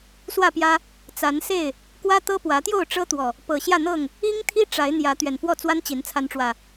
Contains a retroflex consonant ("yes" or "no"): yes